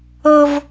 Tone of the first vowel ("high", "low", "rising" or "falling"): high